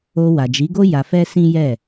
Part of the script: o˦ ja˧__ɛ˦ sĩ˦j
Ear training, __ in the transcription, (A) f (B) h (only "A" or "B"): A